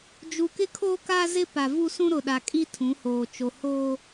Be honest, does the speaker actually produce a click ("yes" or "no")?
no